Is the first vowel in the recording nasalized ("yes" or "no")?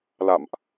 no